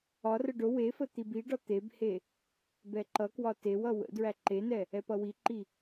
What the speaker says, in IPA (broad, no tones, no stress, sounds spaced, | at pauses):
ɒ r ə ɖ o w e f ə t̪ i b i ɖ ɒ t̪ e b h e | b ɛ ǃ ʌ k w ɒ t e w ʌ w ə̰ d ɹ æ ǃ e n ɛ | ɛ p ʌ w i ǃ i